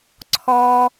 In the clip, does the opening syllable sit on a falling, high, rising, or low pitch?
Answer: high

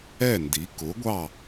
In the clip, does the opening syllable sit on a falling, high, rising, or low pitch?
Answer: falling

